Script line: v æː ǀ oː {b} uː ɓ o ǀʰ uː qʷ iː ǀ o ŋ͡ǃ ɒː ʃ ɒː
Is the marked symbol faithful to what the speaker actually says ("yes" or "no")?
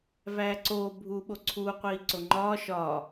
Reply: no